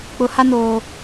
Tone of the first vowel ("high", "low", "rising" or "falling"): rising